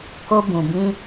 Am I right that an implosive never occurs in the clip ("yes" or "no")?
yes